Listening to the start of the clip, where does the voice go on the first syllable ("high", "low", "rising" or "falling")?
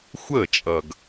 falling